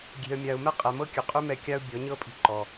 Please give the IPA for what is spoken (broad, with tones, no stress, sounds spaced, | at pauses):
ɡʲ e̤˨ ə̯ mʲ a˨ ʊ̯ m ɛ˦ qʼ ɛ˨ m ɤ˦ kʲ ʉ˨ qʼ ʉ˦ m ɛ˧ kʲ a˦ ʊ̯ bʲ ɔ˨˦ ɲ ɤ˦ pʼ i̤˧ ǃ ɔ˨